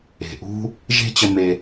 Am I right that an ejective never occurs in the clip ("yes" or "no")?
yes